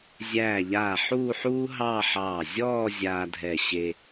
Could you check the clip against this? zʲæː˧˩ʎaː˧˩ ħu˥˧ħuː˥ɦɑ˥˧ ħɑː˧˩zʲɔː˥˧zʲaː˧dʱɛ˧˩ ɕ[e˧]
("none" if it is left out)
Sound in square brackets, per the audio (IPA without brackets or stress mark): e˧